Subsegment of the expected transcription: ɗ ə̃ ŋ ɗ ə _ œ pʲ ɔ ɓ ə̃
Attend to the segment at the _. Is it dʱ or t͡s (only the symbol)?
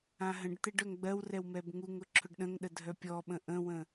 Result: dʱ